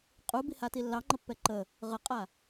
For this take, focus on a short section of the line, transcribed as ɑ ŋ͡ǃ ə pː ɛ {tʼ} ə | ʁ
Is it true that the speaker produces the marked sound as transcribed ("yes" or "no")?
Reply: no